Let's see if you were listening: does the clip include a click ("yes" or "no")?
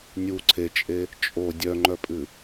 yes